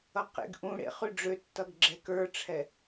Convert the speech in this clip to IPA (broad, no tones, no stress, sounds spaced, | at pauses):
ʌ q ḛ ɡ ʔ ũ ɽ ḛ χ ʉ ɖ͡ʐ ø tː ʌ ɡ ɡ͡ǁ ɛ k ə˞ ʈ͡ʂʰ ɛ